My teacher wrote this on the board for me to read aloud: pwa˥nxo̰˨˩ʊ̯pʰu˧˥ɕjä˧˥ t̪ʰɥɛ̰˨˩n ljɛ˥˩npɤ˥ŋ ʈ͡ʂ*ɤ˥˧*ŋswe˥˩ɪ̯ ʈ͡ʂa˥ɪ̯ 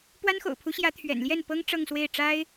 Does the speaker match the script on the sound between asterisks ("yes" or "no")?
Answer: yes